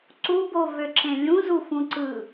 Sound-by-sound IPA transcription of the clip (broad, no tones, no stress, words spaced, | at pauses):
ǀubovøǁẽ lʲũzufũǀɯ